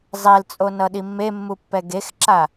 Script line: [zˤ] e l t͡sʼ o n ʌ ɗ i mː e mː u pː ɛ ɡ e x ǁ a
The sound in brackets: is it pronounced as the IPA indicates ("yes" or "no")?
yes